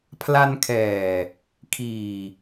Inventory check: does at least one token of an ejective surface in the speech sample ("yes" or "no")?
no